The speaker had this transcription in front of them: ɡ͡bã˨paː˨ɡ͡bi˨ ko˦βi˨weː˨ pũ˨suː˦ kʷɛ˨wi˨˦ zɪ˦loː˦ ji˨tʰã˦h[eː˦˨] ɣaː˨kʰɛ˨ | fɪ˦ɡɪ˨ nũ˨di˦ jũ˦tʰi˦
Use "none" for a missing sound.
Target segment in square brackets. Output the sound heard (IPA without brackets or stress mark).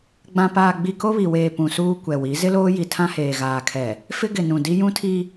eː˨